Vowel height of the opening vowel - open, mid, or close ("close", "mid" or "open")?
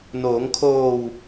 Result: mid